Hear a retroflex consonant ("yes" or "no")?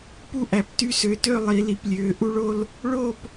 yes